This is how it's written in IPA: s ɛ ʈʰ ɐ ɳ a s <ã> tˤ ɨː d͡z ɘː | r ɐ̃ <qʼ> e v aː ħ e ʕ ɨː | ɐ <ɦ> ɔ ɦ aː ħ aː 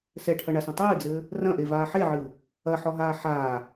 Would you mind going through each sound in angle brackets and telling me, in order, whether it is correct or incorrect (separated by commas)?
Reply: incorrect, incorrect, incorrect